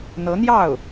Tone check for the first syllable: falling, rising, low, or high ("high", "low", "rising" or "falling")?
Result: rising